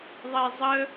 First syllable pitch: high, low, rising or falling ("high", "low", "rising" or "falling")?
low